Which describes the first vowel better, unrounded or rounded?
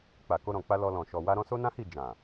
unrounded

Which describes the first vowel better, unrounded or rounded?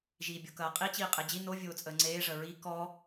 unrounded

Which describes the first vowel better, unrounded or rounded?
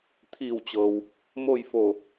unrounded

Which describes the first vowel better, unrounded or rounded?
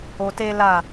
rounded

